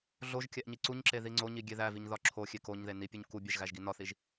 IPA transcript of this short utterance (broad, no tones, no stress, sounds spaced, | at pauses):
ɮ o ʒ kʲ æ ʔ ɲ i ǀ u ɲ ǁ e ð i ŋ͡ǀ o ɲ i ɡʲ e ð æ v i ɲ ð ɒ ǁʰ o xʲ e k o ɲ ð e n i pʲ u ɲ k u bʲ æ ʒ ɣ æ ʒ ɡ i n ɒ θ i ʒ